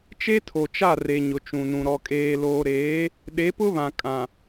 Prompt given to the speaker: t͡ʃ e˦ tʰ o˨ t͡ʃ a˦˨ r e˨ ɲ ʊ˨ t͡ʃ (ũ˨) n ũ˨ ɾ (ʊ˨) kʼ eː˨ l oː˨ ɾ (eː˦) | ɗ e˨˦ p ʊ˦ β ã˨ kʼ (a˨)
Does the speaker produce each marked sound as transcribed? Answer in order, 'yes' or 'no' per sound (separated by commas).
yes, no, no, no